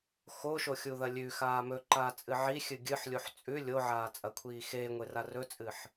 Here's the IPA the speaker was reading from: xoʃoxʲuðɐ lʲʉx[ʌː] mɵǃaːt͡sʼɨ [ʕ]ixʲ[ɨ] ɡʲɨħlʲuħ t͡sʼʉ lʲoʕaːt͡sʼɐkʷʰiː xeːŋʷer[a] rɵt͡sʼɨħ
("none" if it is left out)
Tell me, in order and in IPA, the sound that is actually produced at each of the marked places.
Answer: aː, ʕ, ɨ, a

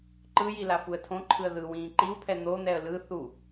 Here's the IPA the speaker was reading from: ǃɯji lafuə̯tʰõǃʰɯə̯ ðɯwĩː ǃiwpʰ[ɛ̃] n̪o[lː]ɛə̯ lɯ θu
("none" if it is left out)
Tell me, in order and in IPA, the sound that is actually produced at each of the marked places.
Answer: ɛ, n̪

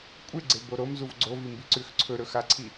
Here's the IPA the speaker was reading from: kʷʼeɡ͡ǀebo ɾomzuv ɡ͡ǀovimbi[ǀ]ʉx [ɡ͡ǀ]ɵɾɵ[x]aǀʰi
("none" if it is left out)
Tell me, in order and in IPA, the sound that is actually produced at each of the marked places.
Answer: ǀ, ǀʰ, x

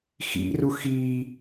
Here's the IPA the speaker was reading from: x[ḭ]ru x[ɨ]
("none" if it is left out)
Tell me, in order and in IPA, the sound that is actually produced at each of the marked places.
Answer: ḭ, i

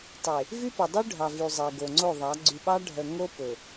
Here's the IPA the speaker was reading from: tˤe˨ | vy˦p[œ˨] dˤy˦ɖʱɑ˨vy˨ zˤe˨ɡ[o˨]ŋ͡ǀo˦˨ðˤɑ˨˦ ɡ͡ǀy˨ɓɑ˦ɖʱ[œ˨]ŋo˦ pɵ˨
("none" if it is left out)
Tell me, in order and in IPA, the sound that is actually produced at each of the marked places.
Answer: ɵ˨, o˨, œ˨

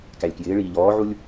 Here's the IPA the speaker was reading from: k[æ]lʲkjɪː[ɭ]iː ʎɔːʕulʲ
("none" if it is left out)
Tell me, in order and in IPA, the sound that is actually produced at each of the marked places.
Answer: æ, ɭ

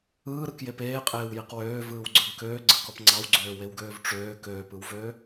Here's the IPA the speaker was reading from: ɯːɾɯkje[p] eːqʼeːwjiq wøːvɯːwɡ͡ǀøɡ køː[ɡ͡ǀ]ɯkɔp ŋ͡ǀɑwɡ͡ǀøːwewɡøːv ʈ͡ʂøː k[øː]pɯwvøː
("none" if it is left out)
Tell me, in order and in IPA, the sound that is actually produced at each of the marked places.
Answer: p, ɡ͡ǀ, øː

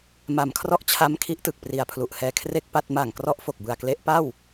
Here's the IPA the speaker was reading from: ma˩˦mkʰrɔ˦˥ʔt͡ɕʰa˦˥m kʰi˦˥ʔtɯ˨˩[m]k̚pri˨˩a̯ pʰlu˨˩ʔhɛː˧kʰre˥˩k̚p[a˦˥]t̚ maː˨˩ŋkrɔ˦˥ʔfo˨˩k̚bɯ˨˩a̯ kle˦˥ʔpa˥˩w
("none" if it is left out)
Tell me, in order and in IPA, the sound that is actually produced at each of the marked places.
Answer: none, a˥˩

